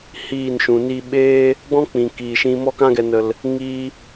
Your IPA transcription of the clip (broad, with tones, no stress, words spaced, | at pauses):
hiː˦˨nʃũ˨niː˦ ɓeː˦ | ɡ͡bɔ̃˦ k͡pĩ˨kiː˨ ʃĩ˦ mɔ˧kã˧ɡɛ˨nə˨l | ŋiː˦